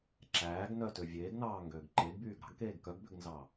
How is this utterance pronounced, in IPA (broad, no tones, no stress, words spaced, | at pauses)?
ǁæːɡnœtø vʲeːɡnɑːŋɡøːɡ ǃeɡbyːɡ ɾɑ̤ɡkeːɡ kœɡbøɡnzɑ